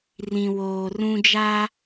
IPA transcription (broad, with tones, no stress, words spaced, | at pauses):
rĩ˨woː˨rũ˦d͡ʒa˦